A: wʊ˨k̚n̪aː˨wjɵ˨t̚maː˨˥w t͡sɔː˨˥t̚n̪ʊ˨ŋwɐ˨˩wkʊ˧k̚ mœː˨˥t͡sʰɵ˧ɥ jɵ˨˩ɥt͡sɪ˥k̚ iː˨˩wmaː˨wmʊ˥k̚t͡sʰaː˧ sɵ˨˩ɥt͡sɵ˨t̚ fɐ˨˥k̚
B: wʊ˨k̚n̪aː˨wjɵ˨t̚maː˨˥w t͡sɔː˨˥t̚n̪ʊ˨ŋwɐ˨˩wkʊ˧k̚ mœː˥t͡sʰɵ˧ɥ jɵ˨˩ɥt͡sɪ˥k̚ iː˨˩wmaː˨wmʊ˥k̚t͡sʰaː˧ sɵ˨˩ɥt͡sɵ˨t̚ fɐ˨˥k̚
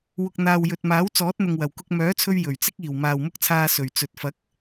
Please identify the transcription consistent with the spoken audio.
A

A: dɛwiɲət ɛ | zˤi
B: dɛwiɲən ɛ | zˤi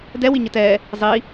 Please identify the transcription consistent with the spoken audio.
A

